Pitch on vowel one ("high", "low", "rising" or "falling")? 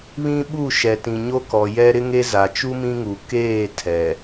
high